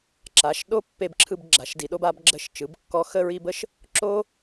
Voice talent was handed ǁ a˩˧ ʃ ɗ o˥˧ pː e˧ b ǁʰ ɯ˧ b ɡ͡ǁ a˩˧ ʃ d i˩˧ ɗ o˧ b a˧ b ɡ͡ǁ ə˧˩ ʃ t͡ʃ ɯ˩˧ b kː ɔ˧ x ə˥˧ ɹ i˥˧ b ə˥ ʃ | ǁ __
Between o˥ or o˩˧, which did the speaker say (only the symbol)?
o˥